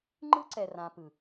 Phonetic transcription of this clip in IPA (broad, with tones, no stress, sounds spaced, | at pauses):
ŋ͡ǃ ɯ˦ ǀ ɛ˨ r ã˨ p ɯ˨